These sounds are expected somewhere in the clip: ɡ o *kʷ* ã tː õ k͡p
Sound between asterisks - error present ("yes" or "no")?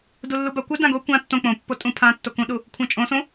no